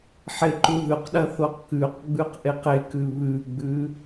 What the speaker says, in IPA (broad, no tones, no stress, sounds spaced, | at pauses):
ħ e ǃ u ð ʉ q ɗ ɐ θ o q k ʉ q ɡ͡b ʉ q ʔ e q e k ʉ β ʉ ɡ͡b ʉ